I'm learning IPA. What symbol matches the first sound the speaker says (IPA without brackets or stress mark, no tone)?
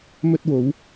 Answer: m